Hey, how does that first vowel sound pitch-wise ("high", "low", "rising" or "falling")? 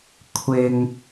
low